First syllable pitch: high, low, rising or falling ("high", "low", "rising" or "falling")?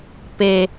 low